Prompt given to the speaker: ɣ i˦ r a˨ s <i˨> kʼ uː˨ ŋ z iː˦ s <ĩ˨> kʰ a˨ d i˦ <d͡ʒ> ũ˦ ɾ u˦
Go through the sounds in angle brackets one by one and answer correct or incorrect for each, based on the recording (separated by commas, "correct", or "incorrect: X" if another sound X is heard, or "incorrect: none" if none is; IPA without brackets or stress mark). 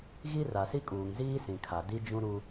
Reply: incorrect: i˦, correct, correct